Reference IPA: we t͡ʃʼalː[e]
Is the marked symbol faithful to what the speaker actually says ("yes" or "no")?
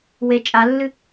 no